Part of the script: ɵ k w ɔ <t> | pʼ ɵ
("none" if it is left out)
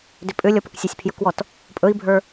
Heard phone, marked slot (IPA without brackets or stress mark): t